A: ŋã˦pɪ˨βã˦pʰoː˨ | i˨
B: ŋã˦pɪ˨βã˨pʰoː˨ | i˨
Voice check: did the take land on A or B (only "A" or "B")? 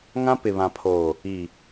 B